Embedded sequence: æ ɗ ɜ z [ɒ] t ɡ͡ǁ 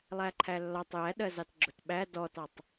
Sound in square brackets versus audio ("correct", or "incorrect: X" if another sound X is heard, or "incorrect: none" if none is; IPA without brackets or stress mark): incorrect: ɑ